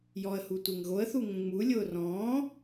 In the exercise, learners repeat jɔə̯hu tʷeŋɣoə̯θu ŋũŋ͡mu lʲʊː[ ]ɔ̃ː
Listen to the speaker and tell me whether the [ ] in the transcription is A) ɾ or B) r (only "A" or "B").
B